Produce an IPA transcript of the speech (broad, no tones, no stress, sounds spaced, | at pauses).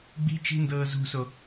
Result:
ɡ͡b i̤ t͡ʃ i̤ n d ɤː z ṳ s o